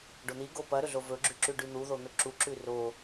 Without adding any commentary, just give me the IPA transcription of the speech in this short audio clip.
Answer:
ɖon̪iɡo pɐɾɵɮo vɵɡ͡ǁʉǁʉ ɖʉn̪uðon̪ɵ ǁuǁʉ ro

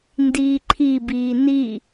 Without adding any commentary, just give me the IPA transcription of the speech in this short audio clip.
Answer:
ndiːǃʰibiː ni

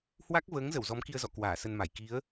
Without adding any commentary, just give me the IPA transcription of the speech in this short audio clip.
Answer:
hwa˦˥k̚vəː˨˦ŋzə˧˩w zɔ˨˦mki˧ə̯zɔ̰˧˨ kwaː˧˩sə˧nma˧˩j ki˨˦ə̯

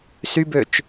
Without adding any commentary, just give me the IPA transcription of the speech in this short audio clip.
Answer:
sybøt͡ʃ

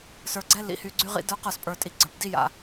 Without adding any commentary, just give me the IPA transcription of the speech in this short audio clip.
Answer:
sə˞˨ɡ͡ǀɛ˦ lḭ˨hy˨ ɡ͡ǀy˦ʁḭ˦ də˞˦q ə˞˨spʼə˞˨tʼi˨ɡ͡ǀə˞˨b di˦ja̰˨

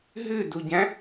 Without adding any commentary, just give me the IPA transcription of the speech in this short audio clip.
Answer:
ɦʉduɟæ̃

